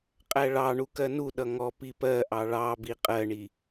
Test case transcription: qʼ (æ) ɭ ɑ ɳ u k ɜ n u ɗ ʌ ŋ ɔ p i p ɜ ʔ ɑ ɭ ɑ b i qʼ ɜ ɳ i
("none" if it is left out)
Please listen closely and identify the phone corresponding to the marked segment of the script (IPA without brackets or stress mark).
æ